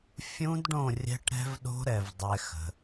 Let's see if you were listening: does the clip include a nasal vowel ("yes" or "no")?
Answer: yes